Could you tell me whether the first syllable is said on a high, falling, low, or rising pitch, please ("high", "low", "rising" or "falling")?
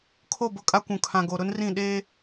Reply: falling